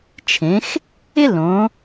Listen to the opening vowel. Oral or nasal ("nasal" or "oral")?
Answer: nasal